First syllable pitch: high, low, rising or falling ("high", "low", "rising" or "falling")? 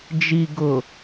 low